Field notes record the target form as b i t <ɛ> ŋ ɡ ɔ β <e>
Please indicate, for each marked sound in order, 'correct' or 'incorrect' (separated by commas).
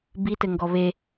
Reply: incorrect, correct